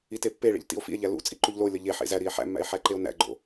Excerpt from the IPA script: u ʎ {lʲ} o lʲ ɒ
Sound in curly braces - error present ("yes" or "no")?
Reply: yes